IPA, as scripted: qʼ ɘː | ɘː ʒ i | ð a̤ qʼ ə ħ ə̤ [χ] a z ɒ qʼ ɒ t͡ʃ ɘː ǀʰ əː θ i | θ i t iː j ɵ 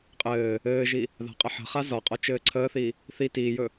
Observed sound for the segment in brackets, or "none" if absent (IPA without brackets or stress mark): χ